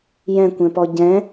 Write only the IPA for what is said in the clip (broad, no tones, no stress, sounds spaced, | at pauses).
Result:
j ɛ̃ kʷ ɛ̃ p ɔ ɟ ɛ̃